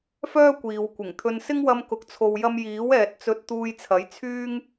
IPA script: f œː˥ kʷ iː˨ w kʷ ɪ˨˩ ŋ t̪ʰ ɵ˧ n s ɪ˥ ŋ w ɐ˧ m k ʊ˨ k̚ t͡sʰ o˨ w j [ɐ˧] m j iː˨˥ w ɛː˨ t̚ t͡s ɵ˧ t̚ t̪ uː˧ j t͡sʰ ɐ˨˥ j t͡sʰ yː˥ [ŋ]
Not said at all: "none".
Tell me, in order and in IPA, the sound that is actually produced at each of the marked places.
ɐ˧, ŋ

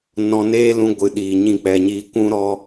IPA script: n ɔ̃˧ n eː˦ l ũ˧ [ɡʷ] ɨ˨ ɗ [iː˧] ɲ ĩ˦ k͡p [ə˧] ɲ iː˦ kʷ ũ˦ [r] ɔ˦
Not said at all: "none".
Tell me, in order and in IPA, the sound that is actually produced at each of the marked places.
ɡʷ, iː˨, ɛ˧, ɾ

